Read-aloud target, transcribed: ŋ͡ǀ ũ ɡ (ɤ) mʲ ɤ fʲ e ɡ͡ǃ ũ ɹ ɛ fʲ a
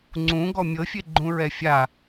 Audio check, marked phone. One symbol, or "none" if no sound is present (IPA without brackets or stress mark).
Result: ɔ